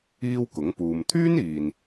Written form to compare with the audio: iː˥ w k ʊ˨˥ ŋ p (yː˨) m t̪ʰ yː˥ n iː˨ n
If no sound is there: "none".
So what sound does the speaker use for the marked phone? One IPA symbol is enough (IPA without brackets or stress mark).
uː˨